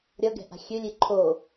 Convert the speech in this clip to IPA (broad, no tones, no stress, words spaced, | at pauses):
ɾʲʌɡɛ̤ʔa̤ xʲølʲe ǃʰo